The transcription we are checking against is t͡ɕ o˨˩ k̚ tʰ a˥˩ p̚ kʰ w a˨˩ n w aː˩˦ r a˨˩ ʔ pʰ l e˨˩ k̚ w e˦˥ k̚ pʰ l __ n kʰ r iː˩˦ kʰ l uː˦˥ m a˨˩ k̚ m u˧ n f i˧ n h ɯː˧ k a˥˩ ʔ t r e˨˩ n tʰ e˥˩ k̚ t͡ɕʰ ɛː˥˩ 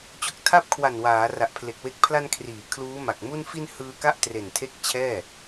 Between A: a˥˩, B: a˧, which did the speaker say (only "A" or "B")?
B